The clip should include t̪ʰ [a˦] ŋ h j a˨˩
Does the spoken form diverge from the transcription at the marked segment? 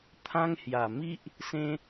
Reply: yes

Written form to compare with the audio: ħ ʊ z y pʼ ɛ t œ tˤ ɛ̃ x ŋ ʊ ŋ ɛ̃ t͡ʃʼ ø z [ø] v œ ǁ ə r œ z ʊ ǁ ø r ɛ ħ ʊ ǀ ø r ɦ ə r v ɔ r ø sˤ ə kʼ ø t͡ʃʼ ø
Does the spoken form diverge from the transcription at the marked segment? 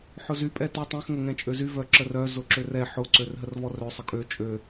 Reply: yes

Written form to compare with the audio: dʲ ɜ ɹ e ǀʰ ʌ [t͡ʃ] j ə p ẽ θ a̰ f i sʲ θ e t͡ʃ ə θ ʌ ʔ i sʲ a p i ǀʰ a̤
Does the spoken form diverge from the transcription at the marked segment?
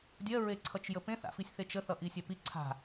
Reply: no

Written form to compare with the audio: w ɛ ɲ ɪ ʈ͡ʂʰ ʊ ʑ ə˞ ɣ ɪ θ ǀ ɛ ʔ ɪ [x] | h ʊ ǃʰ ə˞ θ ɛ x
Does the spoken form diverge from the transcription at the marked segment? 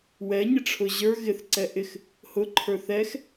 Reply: no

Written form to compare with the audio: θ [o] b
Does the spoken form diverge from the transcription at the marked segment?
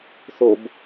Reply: no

